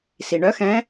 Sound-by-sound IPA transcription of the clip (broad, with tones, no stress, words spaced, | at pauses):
si˩ɳœ˧˥xɛ̃˧˥